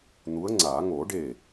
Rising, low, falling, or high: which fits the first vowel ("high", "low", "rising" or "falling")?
rising